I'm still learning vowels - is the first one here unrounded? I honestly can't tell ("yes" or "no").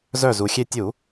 no